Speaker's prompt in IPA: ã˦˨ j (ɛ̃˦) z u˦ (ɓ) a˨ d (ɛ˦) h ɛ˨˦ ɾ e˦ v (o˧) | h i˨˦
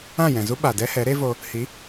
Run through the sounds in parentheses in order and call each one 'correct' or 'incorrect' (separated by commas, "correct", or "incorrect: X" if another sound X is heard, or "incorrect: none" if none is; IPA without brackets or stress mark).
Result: incorrect: ɛ̃˨, correct, correct, correct